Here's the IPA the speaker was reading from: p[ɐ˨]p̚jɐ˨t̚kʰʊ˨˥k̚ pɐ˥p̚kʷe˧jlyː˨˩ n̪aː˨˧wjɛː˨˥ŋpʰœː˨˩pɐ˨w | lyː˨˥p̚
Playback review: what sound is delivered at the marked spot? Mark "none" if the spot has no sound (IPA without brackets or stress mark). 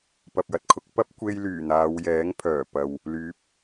ɐ˨